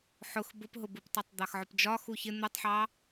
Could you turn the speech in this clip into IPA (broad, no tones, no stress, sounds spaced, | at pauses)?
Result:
ħ ʊ x b ʊ p ɦ ʊ b u p tˤ ɑ tˤ d̪ ɑ x ʕ ʊ p d͡ʒ ɒ x u ç ɪ n̪ u tˤ ħ ɑ